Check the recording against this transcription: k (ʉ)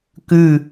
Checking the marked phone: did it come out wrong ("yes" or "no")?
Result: no